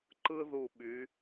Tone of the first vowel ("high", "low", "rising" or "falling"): high